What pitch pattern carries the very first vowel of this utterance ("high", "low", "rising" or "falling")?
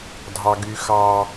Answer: high